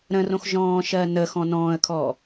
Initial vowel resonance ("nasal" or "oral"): nasal